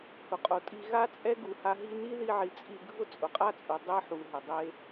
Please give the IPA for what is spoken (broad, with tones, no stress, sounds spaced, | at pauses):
h ʊ˨ qʼ o˨ tʼ i˧ ɣ a˦ t͡sʼ ɛ˦ ɡ u˧ h a˦ ɦ i˦ n i˦ ð i˧ ʕ i˨ t͡sʼ i˧ ɡʱ ʊ˦ t͡sʼ ʊ˨ qʼ a˦ t͡sʼ u˨ dˤ e˧ ħ u˨ ɦ ɪ˨ dˤ e˦